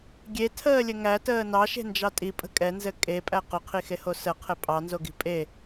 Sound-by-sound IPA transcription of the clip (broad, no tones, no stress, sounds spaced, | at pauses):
ɡʲ e tʰ əː lʲ ɘ ŋ æ t əː n ɑ ʃ e̤ n d͡ʒ ɑ tʼ i pʼ ə̤ kʼ ɛ n z ɘ kʼ e pʼ æ q ʊ qʰ i x e h o s ə qʰ ɘ pʼ ɑ n z o ɡ i̤ pʼ e